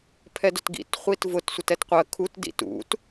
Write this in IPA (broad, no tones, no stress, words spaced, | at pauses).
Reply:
pʰɛdʊtɡḭt χʷitvʊt sʷətɛtqʷɜ kʰut dḭtṵt